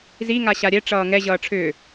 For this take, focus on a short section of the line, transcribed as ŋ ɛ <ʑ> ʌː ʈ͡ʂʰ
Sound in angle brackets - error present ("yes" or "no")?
no